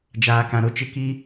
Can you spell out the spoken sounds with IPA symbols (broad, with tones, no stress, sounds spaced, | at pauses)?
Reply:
d͡ʒ aː˨ k ã˨ ɾ o˦ t͡ʃ ɪ˦˨ k i˦